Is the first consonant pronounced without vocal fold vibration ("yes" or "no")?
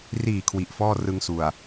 no